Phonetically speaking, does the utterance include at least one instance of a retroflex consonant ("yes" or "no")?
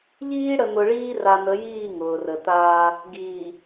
yes